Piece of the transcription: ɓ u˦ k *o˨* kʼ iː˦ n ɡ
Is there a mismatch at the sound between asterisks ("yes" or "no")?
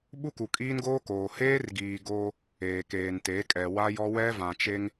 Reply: yes